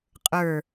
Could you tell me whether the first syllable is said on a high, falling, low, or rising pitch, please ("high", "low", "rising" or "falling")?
falling